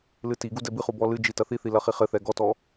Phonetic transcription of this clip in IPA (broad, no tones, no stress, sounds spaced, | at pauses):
l ɨ t i ɡ u d ɛ b ɨ χ u b ɔ l ɨ d͡ʒ i t ɐ θ i θ i l ɐ χ i χ ɘ θ ɛ ɡ ɔ t ɔ